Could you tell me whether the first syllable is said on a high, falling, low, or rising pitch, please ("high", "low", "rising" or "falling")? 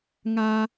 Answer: high